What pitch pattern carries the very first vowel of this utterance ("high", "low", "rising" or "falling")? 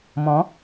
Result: rising